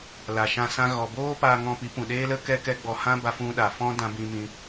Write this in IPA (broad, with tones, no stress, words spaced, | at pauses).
la˨ʃã˧sã˧ ɣɔ˨boː˦ paː˧ŋɔ̃˧pi˨˦ pũ˨ɗeː˦lə˦ kɛ˦kɛ˦ɡ͡bɔ˧ hã˦ba˧fũ˧ɗa˨ fɔ̃˦dã˧bĩ˧mĩ˧